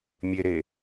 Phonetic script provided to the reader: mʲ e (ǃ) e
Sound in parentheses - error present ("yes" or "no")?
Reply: yes